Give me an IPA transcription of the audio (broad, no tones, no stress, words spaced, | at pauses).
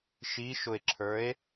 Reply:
ʃiʃʊe̯ǁʰə˞e̯